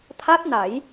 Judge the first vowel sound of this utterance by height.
low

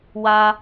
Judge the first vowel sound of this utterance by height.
low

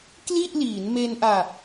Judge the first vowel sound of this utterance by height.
high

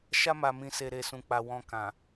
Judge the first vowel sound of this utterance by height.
low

